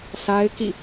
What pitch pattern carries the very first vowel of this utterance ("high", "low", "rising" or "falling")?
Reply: high